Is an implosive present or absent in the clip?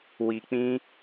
absent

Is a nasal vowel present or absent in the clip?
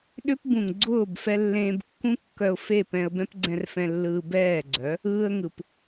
present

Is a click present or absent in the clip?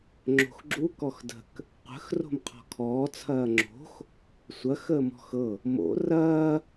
present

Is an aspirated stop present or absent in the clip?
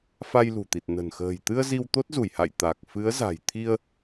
present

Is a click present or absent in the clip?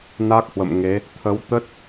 absent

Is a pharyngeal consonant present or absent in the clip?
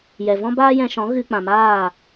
absent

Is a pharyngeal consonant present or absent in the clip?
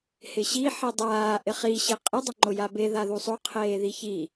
present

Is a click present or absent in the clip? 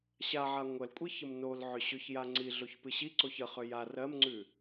present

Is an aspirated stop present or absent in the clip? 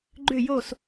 absent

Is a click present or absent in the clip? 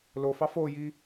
absent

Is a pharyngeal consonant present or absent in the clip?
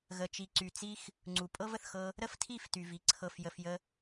absent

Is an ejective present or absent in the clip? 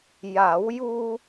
absent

